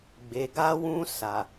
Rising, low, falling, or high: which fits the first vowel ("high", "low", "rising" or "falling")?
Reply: low